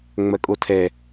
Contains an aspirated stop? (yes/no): yes